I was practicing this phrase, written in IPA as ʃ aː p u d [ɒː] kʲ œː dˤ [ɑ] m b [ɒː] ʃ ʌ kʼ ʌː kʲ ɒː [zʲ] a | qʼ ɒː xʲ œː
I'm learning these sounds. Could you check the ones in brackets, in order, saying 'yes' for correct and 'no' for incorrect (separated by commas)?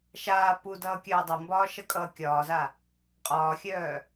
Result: no, no, yes, no